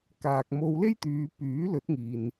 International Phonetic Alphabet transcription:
kaː˨k̚mo˧w le˥jt̪yː˨˧ pyː˨˥lɵ˨˥t̚ŋiː˨n

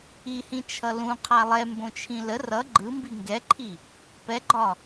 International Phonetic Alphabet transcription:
ihĩ t͡ʃʰʌlũ qʰalˠɛ mbõt͡ʃʰĩlə rʌ ɡ͡ǃɯmbi ŋɡɛǃʰi | pɛɡ͡ǃɒ

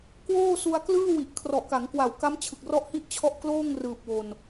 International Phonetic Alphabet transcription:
kwoː˥˩su˧a̯klɯː˥˩wi˨˩ʔ kʰrɔ˨˩ʔka˩˦ŋkwa˨˩w ka˦˥mt͡ɕʰɯ˨˩k̚rɔ˦˥ʔhi˦˥ʔ t͡ɕʰɔ˦˥ʔkloː˥˩ŋrɯː˨˩p̚ wo˧n

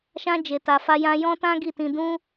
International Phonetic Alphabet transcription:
ʃã˦ d͡ʒe˧ta˧fa˦jã˦ jɔ̃˦tã˦ ɡi˦˨tĩ˧ dũ˦

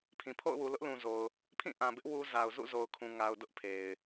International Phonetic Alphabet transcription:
pʰĩ˨pʰo̰˦˨ʊ̯wu˨ lʊ˦ʔlũ˨zo˨ʊ̯ | pʰĩ˦˨ʔã˨bɪ˦ʔ wu˦ za˨ʊ̯ zṵ˦˨zo˨ʊ̯kʰũ˨ ŋa˨ʊ̯ dʊ˦ʔpʰe˨ɪ̯

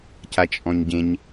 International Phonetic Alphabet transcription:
cat͡ʃʼɔ̃ɲɟẽɲ

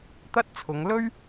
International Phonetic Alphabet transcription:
t̪ɐ˥t̚t͡sʰʊ˨˧ŋ lɵ˥ɥ

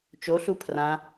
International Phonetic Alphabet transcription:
t͡ʃoɬu pʰrã

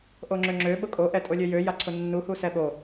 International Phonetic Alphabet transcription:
ʔoŋ͡ǁøŋ͡ǁø ɓʊkʼo ʔɛtʼolʲøjø jaǀʰʊnːu husɛɓo

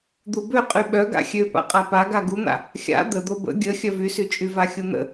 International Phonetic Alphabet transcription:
d̪ubøqʼy ɓœɡa̰ xʲøpa̰qʼa paɡa ɡun̪a̰ | xʲa̰ d̪əd̪o bə̰ ɡʲə xʲœvysyt͡ʃʼy vaxʲun̪ə̰

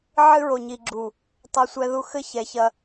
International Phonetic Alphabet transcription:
ʕɨ˦ɹo˨ɲi˨ɡ͡ǁu˨ | tˤɐ˦sʷɛ˦ðu˦ xɘ˦ çɛ˨çɐ˦

